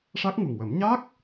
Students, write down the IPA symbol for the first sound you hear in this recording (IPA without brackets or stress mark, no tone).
ʂ